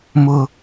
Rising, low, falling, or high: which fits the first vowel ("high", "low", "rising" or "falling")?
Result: low